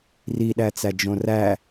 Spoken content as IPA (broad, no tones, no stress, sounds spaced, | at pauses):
r i ɗ æ t͡s æ d͡ʒ õ r æ